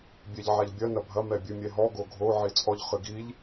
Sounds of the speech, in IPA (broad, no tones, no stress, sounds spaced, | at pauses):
bʲ ɛ ʎ ʕ a ʎ bʲ ɐ n ɐ bʱ ɐ m ɛ bʲ ɨ mʲ ɛ ɦ ɔ ɡ o ɡʱ o ʕ i t͡sʼ ɔ ʎ χ ɨ ɡ i ʎ